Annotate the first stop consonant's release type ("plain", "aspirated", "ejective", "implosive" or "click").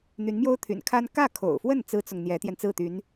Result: aspirated